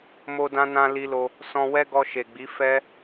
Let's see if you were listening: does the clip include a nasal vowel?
yes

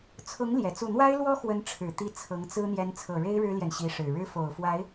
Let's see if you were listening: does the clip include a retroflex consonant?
yes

